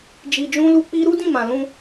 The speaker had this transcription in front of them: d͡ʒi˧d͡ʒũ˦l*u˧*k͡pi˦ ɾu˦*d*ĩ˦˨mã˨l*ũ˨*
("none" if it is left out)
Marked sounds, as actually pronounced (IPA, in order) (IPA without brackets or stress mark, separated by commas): u˦, d, ũ˧